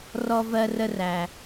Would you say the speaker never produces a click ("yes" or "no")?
yes